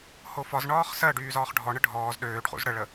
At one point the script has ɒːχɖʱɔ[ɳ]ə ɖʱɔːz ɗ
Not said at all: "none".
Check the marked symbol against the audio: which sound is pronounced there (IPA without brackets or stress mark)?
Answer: ɳ